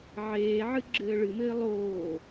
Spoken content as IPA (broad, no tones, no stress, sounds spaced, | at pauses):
ʕ eː ʕ ɨ ɡ͡ǁ ɘː ɭ ɨ m ɘː lˠ oː